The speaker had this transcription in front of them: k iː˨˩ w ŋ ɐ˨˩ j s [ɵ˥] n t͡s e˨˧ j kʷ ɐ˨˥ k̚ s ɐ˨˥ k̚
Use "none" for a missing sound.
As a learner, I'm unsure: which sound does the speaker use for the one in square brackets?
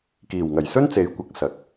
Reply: ɵ˥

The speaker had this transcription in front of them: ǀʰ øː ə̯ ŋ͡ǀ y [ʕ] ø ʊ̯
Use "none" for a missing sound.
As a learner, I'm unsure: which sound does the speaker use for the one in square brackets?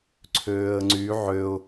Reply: ʕ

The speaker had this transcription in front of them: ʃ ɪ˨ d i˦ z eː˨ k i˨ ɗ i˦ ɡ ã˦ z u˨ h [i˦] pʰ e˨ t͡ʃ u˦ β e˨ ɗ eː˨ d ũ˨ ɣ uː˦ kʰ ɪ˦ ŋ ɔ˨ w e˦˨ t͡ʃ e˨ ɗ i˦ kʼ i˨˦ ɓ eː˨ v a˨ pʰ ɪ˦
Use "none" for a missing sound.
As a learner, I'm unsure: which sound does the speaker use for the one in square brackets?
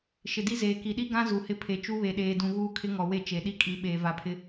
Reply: ɪ˦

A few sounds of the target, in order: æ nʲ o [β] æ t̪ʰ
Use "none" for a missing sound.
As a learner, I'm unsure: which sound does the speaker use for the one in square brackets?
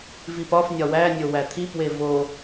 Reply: w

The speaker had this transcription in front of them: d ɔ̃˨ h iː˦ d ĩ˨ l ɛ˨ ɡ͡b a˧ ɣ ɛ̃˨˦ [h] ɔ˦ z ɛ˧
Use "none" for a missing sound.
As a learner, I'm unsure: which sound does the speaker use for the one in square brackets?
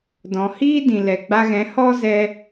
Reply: h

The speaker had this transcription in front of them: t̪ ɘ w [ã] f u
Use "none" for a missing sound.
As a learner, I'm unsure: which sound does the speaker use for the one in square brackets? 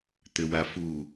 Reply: a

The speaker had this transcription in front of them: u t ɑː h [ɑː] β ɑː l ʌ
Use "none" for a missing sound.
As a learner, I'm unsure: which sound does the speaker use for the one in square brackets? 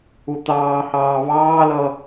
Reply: ɑː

